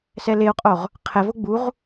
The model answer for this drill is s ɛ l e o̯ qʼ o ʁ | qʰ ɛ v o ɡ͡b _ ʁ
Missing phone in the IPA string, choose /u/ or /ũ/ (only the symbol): u